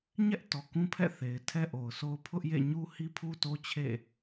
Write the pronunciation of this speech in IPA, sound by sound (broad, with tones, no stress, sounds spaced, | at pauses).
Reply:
ɲ ɛ˦ ʔ t ɔ˨ k ũ˦ pʰ ɛ̰˦˨ θ e˨ ɪ̯ tʰ ɛ˦ ʔ o˨ ʊ̯ sʰ o˦ ʊ̯ pʰ ʊ˦ ʔ j ḛ˦˨ ɲ u˦ h i˦ pʰ u˦ t o˦ t͡ɕʰ ḛ˦˨